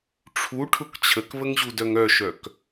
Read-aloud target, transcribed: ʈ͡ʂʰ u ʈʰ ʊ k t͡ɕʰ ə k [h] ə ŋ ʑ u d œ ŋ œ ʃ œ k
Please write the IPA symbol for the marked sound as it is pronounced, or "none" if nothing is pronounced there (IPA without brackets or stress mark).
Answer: β